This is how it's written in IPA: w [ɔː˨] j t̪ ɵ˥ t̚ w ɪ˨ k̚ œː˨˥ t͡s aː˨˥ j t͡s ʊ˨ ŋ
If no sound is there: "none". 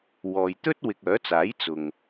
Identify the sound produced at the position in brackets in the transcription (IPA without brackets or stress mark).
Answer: ɔː˨